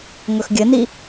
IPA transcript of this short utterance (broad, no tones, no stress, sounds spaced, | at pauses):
ŋ ɵ x ɡʲ ɘ n i